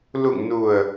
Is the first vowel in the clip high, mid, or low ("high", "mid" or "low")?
high